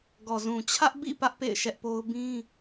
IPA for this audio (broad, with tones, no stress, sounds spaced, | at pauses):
ɡ ɔ˨ z ũ˨ t͡ɕʰ ä˦ ʔ b ḭ˦˨ p ä˦ ʔ p ḛ˦˨ ɪ̯ ʃ ɛ˦ ʔ p o˦ ʊ̯ b ĩ˦